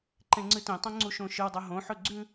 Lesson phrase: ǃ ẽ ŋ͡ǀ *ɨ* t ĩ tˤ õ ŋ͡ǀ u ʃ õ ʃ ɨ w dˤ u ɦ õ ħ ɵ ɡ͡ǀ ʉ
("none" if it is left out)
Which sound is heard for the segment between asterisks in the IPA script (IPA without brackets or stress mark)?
ɨ